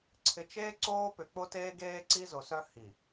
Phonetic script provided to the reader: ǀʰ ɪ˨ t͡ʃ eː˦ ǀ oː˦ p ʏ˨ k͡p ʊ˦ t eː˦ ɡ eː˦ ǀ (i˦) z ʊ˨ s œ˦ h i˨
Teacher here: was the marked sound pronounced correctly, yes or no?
yes